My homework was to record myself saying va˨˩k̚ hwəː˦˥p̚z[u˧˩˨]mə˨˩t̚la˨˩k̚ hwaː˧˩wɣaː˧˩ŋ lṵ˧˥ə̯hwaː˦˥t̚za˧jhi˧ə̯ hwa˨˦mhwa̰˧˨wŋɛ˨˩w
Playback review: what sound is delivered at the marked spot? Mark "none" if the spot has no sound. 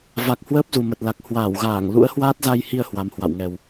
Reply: u˨˩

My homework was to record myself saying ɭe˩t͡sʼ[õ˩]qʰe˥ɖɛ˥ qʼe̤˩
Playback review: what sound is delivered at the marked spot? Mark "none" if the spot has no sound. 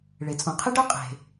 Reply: õ˩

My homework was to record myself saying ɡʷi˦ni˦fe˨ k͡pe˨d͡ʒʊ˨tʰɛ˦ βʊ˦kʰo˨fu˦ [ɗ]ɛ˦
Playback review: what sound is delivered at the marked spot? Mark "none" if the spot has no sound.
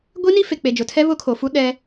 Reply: ɗ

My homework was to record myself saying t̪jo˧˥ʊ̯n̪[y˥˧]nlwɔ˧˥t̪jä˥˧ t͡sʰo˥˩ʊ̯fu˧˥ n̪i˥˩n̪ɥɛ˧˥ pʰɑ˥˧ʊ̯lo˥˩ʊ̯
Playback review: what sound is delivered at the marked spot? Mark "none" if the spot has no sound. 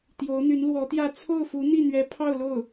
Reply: y˧˥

